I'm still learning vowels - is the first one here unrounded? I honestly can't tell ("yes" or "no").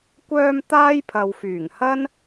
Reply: no